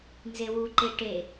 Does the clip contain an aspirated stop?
no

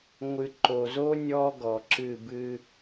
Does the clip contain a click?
yes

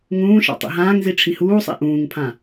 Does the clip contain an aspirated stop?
yes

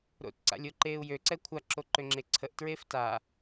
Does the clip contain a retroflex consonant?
no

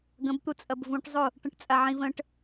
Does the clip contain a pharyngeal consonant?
yes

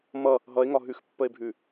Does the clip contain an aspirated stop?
no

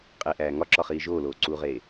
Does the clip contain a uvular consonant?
yes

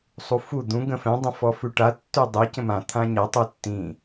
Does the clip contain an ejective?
no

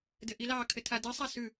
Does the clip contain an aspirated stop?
yes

